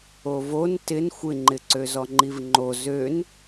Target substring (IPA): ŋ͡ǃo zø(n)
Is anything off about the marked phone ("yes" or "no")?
no